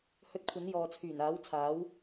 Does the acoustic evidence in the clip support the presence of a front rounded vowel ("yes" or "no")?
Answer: yes